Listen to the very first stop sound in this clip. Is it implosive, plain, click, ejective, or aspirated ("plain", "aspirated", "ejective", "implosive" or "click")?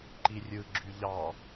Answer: click